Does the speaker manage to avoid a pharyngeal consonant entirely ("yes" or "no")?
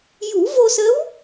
yes